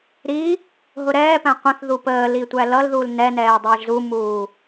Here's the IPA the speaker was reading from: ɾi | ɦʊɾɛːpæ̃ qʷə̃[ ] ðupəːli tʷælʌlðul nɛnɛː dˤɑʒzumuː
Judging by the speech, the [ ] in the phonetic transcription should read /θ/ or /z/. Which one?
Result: θ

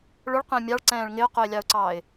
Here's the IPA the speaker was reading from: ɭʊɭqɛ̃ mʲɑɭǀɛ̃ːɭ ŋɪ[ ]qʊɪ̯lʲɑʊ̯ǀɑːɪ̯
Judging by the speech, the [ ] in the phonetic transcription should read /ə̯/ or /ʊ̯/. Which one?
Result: ʊ̯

